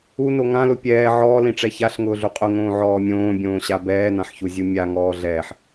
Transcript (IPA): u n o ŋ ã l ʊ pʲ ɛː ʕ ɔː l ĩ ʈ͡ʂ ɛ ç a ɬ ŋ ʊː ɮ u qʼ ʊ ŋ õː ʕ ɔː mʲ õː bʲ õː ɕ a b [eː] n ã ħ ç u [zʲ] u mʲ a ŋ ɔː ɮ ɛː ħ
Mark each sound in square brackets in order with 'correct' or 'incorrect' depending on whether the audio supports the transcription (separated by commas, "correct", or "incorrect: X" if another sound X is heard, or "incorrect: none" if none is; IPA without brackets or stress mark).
incorrect: ɛː, correct